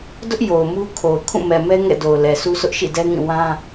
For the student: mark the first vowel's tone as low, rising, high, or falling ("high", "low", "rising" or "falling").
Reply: high